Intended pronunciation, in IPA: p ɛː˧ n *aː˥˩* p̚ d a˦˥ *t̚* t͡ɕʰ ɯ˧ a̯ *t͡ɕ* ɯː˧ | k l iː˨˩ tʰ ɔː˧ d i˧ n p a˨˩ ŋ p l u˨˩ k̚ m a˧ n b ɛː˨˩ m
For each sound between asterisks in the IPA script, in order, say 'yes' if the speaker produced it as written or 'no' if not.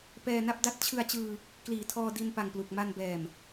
no, yes, yes

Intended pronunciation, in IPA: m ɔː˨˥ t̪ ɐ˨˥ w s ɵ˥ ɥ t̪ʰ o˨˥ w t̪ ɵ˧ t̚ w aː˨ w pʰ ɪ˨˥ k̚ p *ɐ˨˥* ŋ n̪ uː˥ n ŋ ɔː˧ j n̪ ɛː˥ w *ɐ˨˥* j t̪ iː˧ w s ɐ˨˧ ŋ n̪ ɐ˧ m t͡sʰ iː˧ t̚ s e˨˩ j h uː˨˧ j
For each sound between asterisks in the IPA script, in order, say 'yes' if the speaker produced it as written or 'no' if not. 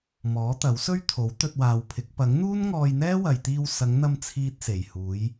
yes, no

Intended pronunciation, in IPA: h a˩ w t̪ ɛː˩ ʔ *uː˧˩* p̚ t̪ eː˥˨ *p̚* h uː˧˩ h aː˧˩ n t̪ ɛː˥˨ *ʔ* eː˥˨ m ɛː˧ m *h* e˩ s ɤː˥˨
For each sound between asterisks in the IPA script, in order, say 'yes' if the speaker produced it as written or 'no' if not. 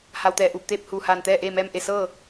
yes, yes, yes, no

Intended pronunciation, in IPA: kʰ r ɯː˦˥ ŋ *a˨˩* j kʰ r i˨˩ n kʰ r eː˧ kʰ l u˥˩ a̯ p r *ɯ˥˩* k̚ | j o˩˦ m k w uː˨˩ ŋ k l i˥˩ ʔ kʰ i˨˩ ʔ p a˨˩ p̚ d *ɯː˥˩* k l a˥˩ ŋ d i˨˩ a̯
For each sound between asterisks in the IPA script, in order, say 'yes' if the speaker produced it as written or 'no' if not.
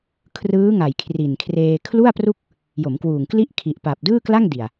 yes, no, yes

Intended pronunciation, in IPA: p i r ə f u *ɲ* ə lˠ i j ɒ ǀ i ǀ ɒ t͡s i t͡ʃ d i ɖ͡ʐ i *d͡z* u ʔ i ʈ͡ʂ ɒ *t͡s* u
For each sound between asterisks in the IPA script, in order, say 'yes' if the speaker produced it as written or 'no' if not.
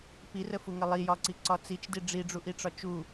no, no, no

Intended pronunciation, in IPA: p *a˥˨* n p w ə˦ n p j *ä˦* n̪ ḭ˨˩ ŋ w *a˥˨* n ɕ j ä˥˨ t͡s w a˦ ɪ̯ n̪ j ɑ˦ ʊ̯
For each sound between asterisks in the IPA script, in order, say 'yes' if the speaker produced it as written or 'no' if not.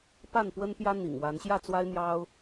yes, yes, no

